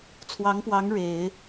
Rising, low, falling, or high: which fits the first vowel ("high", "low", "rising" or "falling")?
rising